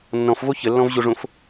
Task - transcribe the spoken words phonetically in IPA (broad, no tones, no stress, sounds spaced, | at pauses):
nː ɔ̃ f v o ç ə lː ɔ̃ v ʑ o ʐ õ f